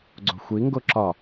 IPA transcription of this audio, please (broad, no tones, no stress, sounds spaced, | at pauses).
ɡ͡ǀ o̤ xʷ i ŋ ɡ o ǁ ɒ